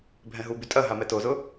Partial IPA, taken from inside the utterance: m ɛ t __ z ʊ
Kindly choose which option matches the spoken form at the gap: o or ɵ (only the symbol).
o